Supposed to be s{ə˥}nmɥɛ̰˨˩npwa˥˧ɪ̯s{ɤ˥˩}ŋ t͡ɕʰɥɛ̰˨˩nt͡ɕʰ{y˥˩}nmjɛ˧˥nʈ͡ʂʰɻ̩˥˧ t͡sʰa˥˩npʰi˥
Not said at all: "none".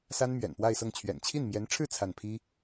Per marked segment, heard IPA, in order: a˥, ɤ˥˩, i˥˩

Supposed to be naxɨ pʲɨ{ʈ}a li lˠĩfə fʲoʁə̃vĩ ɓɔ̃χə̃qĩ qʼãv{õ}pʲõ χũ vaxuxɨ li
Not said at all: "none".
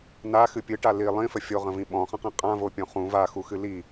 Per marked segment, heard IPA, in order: ʈ, o

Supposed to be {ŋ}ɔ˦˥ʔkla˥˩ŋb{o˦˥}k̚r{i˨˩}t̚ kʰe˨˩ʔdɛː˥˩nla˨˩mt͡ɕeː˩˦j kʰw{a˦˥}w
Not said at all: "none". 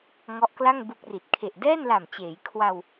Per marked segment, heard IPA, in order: ŋ, u˦˥, i˨˩, a˧

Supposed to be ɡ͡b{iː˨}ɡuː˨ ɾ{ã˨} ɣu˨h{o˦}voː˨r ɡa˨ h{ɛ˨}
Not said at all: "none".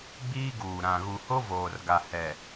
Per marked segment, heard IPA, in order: iː˦, ã˨, o˦, ɛ˨

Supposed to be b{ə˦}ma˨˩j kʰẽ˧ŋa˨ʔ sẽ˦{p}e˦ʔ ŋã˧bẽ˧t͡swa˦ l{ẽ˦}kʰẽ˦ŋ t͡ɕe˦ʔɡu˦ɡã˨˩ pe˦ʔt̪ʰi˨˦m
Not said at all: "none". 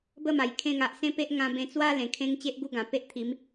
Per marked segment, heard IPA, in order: ə˥˧, p, ẽ˨˩

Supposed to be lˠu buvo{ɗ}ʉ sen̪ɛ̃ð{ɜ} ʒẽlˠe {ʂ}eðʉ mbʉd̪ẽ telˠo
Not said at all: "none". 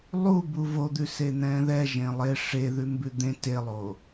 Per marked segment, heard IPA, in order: d̪, ɛ, ʂ

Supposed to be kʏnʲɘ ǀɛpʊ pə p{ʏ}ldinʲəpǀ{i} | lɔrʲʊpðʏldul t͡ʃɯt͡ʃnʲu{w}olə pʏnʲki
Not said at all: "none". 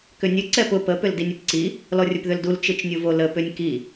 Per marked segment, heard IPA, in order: ʏ, i, v

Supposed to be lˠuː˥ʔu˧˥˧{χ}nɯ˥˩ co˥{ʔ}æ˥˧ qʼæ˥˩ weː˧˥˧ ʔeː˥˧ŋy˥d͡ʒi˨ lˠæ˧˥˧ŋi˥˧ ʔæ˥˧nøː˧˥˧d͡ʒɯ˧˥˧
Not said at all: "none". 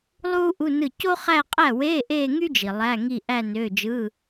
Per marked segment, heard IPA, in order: none, χ

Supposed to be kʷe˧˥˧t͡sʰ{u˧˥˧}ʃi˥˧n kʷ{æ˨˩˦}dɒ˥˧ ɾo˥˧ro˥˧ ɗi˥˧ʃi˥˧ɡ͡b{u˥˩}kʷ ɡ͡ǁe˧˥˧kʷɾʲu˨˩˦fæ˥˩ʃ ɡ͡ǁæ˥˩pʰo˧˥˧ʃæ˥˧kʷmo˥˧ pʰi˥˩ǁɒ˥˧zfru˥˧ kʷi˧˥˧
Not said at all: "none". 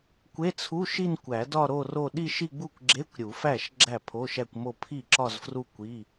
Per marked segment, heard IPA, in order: u˧˥˧, æ˨˩˦, u˥˩

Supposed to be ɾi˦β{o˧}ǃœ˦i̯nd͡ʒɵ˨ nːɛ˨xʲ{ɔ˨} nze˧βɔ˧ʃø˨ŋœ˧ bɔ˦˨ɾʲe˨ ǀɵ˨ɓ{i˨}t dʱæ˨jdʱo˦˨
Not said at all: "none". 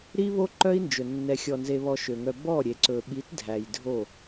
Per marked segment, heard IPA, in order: o˦, ɔ˨, i˨˦

